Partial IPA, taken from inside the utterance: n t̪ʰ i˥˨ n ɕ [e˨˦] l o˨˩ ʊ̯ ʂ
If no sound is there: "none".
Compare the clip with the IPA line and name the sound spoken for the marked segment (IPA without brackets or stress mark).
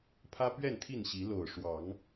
i˨˦